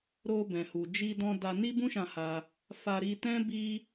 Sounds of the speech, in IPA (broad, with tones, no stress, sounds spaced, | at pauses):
ɾ o˧ b ɛ̃˨ h u˨ d͡ʒ i˧ d ɔ̃˧ d a˧ n i˦ b ũ˦ ʃ ã˧ h a˧ | f a˧ ɾ i˧ t ɛ̃˦ b i˦